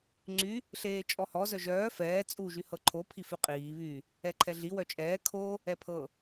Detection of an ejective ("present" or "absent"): present